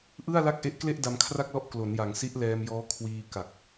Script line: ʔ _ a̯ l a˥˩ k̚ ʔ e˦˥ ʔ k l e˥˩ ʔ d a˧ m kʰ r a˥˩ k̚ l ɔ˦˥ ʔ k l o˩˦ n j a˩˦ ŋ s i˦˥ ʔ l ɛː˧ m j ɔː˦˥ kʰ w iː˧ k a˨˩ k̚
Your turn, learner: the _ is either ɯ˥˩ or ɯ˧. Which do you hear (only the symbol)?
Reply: ɯ˥˩